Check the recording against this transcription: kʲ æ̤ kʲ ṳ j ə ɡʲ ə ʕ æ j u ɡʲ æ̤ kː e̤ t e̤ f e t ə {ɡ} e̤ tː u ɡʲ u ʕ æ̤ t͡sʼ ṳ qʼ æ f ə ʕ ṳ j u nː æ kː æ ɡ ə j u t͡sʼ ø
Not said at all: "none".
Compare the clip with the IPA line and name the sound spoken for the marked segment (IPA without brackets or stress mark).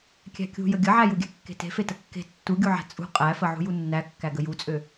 kː